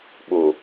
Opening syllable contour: low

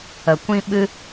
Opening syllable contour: low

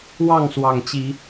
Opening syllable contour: falling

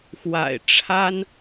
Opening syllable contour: low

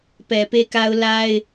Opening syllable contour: low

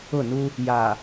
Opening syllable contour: falling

